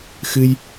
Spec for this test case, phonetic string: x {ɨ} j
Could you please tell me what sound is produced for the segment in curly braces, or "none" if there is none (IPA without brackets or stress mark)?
ɨ